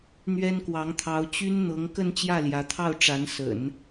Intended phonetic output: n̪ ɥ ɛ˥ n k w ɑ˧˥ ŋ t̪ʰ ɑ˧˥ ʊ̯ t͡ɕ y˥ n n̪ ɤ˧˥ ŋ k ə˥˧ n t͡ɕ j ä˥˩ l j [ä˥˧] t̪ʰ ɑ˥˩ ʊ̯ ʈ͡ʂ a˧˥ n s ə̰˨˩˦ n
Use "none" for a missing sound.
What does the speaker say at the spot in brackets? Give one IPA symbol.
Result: ä˧˥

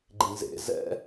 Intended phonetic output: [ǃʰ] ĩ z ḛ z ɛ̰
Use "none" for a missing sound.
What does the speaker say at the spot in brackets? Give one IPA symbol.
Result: ɡ͡ǃ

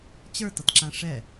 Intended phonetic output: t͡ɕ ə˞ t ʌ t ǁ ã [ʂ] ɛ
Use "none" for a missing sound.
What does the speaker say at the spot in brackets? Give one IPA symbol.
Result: ʂ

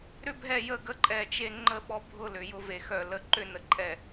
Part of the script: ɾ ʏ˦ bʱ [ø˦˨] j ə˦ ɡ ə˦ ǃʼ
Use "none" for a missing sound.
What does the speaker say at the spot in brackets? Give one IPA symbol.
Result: ɛ˦˨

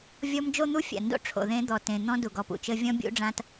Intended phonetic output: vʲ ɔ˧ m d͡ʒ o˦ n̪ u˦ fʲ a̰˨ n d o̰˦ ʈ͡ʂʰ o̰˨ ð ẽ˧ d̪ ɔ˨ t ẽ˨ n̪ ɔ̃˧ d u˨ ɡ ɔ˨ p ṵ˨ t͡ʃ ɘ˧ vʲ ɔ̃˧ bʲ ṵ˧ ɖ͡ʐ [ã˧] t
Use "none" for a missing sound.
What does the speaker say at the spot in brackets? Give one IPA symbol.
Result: ã˧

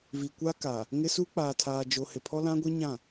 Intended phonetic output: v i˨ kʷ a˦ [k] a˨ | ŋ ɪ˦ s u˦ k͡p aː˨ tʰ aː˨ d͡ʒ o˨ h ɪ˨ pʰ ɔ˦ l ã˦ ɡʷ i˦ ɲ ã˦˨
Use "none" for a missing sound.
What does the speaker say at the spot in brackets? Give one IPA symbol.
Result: k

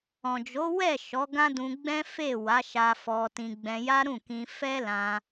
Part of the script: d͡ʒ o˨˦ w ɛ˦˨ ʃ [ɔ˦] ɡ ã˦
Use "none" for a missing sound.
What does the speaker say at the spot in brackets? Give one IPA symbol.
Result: ɔ˨˦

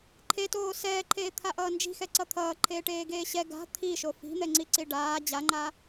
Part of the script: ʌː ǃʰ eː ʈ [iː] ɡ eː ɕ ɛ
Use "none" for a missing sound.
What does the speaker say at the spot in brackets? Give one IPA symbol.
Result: eː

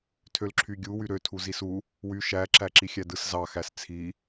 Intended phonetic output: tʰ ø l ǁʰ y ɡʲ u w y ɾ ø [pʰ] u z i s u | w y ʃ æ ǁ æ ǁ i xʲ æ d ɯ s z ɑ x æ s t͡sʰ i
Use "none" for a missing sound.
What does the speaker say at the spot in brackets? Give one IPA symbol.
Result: tʰ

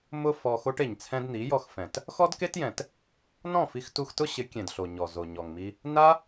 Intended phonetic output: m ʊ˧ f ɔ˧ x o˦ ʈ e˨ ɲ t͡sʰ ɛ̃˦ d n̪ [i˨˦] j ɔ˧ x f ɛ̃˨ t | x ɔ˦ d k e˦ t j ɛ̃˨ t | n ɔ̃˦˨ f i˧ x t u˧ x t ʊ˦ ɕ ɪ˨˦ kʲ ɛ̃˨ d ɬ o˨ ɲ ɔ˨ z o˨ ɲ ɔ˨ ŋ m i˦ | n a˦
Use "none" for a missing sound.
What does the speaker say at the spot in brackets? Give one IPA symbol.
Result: i˨˦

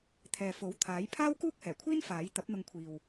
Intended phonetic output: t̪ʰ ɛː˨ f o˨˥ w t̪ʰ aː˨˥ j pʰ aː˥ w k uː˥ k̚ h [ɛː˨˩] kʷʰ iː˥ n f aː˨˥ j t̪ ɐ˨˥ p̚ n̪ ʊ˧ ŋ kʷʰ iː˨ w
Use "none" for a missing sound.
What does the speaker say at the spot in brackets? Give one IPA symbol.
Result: ɛː˨˩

